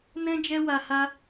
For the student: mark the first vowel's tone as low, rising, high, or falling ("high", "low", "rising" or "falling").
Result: high